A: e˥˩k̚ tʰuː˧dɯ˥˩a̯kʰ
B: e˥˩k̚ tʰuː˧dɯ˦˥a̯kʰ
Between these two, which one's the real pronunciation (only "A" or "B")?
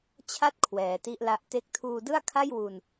A